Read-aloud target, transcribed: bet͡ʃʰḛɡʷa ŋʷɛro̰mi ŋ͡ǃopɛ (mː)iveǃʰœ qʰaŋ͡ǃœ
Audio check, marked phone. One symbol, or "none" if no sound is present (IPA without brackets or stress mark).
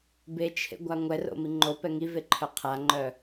ŋ